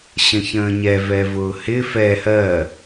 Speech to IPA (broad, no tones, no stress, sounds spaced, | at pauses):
ɕ ə̃ ç ə̃ː ɲ ɛ v ɛ v ʊː h ɪ f ɛ h ɜ